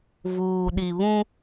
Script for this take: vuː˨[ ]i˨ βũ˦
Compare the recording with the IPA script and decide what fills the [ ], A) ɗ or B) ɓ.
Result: A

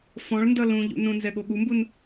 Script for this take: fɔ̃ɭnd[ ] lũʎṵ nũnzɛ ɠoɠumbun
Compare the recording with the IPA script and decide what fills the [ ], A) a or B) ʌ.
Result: B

